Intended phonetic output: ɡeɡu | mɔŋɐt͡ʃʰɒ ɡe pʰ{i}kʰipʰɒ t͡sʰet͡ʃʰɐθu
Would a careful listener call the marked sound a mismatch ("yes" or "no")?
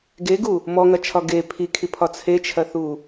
no